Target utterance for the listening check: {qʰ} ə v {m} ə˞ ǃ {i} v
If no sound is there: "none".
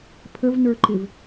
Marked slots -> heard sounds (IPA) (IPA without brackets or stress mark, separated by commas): pʰ, n, ɪ